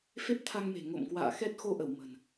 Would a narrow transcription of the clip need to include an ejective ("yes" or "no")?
no